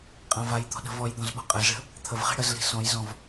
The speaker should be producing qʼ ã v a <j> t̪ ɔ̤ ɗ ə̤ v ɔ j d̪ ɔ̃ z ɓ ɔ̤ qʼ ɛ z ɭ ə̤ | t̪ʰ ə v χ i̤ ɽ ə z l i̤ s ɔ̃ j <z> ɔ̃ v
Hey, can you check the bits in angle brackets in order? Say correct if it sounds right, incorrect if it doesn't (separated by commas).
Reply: correct, correct